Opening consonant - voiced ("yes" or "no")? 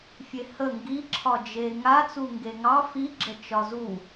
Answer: no